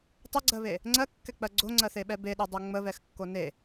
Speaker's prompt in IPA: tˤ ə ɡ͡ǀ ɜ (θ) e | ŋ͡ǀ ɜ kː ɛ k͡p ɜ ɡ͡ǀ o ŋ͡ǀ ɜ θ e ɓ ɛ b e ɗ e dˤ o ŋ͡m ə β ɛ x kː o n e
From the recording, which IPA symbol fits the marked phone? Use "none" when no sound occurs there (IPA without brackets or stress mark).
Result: β